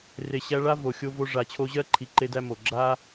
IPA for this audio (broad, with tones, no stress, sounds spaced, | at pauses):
r e˨ ɕ æ˧ ɭ a˦ v o˨ xʲ o˧ v o˧ ʐ a˨ t͡ɕʰ o˧ ʑ ɜ˦ ǃʰ i˨ ǃ e˦ d æ˦ m o˨ ɡ͡ǁ a˦